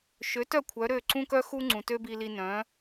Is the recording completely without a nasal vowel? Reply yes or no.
no